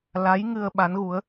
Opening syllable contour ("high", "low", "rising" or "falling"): rising